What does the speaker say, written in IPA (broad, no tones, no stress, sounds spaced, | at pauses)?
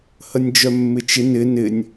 h ə nʲ d͡ʒ œ mː ɪ t͡ʃ ɪ n ɪ n ɪ nʲ